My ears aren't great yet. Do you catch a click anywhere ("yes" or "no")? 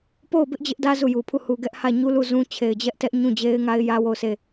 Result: no